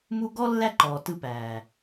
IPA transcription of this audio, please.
m u˦ ɡ ɔ˦ lː æ˦ ǃ ɔː˨ t ɯ˧ p æː˨

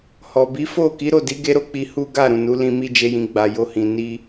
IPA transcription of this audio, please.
h ɔ˨ b i˨˦ f o˦˨ k i˨˦ ɾ o˦˨ d i˨˦ ɡ e˦ ɾ o˧ k͡p i˧ h u˦ ɡ a˦˨ ɾ ũ˨ n u˨˦ l ĩ˧ m i˧ d͡ʒ e˧ j ĩ˨ ɡ͡b a˨ j o˧ h ĩ˨ n i˧

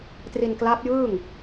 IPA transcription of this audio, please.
t r i˧ n k l a˦˥ p̚ j ɯː˥˩ ŋ

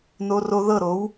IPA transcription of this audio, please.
n o˧ r o˧ ð ɤ˦˨ ɾ o˨˦ w

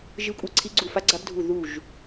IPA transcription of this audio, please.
ʒ ɨ˦˥ kʷʼ ɨ˦˥ ǀʰ i˦˥ ɡ͡ǀ u˦˨ f a˦˥ ɡ͡ǀ a˦˥ b dʱ u˦˨ ð u˦˨ ʒ

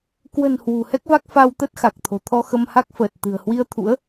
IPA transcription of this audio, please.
k w ə̤˨˩ n h w ṳ˨˩ h ɛ˦˥ k̚ v a˦˥ k̚ f a˧ w t̪ ə˦˥ t̚ x a˨˩ k̚ t̪ʰ o̤˨˩ t̪ʰ ɔ˧ x ə˧ m h a˦˥ k̚ f əː˨˩ t̚ t̪ ɨ̤˨˩ ə̯ h w i˧ ə̯ t̪ʰ ṵ˧˥ ə̯

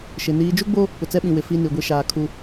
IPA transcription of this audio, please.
ʃ ɪ˨ n iː˨ d͡ʒ u˦ ɡ͡b o˦ | p ʊ˨ t͡s ɛ˦ ɓ ĩ˨ w ɪ˨ f i˦ n i˨ ɡʷ i˦ ʃ aː˨ kʰ u˦

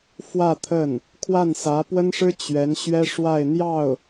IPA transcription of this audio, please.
f w ä˥˧ t̪ʰ ə˥˩ n | kʰ w a˥˩ n s ä˧˥ p w ə˥ n ʂ ɻ̩˥ t͡ɕ ɥ ɛ˧˥ n ɕ ɥ ɛ˥ ʂ w a˥˧ ɪ̯ n̪ j ɑ˥˩ ʊ̯

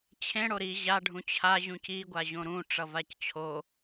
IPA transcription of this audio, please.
t͡ɕʰ ẽ ɽ o ɾ i ʑ a ɖʱ ũ t͡ɕʰ a ʑ ũ c i ɡʷ a ʑ õ ɾ ũ ʈ͡ʂ ʌ v a c t͡ɕʰ o

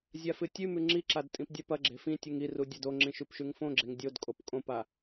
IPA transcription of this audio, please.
zʲ a f ɨ tʲ ʉ m ʉ ŋ͡ǁ i ǁ a d tʼ ĩ p dʲ a p ɐ ɡ͡ǁ e̤ f ĩ tʲ u ŋ i r u dʲ a d o ŋ͡ǁ ĩ ʃ ʉ p ʃ ʉ ŋ f õ ɡ͡ǁ e ŋ dʲ o d kʼ o p kʼ õ p a

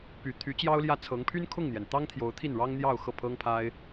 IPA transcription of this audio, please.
p y˨˩ t̪ʰ y˧˥ t͡ɕ j ɑ˥ ʊ̯ l j ä˥˩ t͡sʰ ɤ˧˥ ŋ pʰ y˥ n kʰ ʊ˥˩ ŋ n̪ j ɛ˩ n t̪ ɑ˥ ŋ t̪ʰ j o˧˥ ʊ̯ t̪ʰ i˥˩ n ɻ ɑ˥ ŋ n̪ j ɑ˥˧ ʊ̯ x ɤ˥˩ pʰ ɤ˥ ŋ pʰ a˥ ɪ̯

